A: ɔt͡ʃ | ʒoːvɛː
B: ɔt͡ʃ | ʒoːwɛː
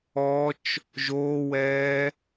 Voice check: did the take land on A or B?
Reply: B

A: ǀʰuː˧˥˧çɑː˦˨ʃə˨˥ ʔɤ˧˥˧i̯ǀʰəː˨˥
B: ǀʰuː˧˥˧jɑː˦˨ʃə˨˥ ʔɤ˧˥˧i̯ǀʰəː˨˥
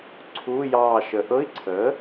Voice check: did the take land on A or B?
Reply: B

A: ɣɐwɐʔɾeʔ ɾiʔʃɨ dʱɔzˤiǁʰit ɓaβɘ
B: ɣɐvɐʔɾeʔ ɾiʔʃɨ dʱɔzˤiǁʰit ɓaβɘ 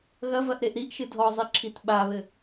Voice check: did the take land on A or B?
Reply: B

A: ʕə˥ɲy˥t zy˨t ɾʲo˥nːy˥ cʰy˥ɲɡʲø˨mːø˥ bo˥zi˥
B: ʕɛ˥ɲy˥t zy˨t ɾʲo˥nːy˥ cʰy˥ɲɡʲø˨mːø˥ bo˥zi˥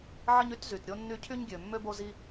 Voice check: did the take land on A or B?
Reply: A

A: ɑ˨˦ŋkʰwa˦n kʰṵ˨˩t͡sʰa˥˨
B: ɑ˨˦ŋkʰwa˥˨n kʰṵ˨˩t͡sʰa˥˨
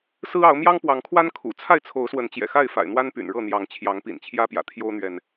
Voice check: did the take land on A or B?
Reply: A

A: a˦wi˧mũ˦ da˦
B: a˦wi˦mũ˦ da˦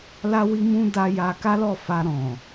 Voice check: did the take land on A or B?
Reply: B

